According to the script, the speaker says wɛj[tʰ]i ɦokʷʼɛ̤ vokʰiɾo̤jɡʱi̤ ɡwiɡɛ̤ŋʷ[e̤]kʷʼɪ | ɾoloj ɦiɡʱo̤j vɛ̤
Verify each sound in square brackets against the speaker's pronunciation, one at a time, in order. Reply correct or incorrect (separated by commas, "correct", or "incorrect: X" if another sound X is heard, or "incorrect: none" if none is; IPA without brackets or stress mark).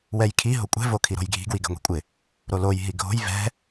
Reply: incorrect: kʰ, incorrect: i̤